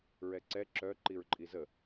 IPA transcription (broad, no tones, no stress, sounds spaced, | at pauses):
ɹ ɛ ǀ ɛ ǁ œ ǃ i ɹ ǃʼ i z ə